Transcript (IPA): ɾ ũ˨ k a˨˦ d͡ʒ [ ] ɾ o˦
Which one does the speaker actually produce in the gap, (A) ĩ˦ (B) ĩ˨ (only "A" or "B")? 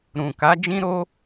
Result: A